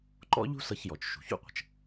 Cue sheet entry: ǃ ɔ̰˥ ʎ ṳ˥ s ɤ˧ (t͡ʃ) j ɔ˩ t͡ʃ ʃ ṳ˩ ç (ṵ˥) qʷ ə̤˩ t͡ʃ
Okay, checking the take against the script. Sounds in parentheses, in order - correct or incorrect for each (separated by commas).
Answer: incorrect, correct